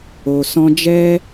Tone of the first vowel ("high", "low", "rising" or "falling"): low